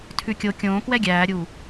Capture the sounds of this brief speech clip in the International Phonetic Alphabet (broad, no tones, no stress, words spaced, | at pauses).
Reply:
tʰʉkʲo kʲõːkwɛ ɡʲæːɾʲuː